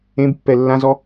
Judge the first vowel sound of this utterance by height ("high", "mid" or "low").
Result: mid